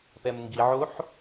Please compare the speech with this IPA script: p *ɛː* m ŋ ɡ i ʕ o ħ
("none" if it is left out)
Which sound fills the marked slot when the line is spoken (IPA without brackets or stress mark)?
ɛ